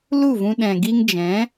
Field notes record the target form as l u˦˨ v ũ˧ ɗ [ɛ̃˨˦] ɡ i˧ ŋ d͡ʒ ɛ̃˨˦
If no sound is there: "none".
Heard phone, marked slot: ɛ̃˨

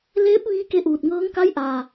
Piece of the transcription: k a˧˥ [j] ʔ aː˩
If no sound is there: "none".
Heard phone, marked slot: j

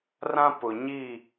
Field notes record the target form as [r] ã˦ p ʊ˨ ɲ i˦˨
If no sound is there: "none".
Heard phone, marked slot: r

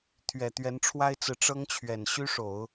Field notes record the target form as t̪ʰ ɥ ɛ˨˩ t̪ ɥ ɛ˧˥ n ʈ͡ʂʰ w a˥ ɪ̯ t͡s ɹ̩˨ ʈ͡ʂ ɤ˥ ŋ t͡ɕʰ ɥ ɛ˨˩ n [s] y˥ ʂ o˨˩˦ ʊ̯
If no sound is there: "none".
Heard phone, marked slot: ɕ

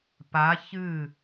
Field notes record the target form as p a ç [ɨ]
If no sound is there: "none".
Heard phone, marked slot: ɨ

